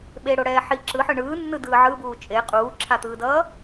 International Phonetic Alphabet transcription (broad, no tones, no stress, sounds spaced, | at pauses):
ɓ e ɽ o ɽ ɛː ħ i ǁ ɯ ħ ɯ ɳ ɯː nː ɯ d ɯː ʕ ɯ b uː t͡ʃʼ e qʼ uː ǁʰ a t̪ ɯː d ʌː